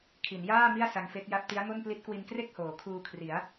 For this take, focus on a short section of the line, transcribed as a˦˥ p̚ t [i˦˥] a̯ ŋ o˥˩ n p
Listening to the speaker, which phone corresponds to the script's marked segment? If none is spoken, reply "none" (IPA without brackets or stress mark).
i˦˥